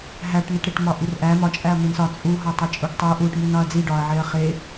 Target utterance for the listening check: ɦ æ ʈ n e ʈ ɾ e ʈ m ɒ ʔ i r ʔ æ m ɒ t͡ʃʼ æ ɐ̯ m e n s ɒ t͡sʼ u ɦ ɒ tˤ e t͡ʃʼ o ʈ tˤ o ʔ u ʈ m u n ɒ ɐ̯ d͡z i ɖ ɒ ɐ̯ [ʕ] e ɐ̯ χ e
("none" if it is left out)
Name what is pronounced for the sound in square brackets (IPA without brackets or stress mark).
ʕ